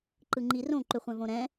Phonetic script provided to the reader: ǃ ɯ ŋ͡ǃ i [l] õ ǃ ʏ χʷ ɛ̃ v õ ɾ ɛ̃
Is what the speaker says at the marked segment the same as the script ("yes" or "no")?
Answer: no